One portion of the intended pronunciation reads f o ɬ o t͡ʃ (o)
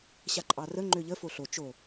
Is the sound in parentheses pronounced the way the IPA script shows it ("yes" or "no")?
yes